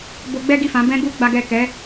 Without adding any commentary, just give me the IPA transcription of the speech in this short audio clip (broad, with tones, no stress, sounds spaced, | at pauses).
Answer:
b o˧ ɡ͡b ɛ˦ ɡ i˦˨ f ã˨˦ b ɛ̃˦ ɡ u˦ ɡ͡b a˦ ɡ ɛ˦˨ k ɛ˨˦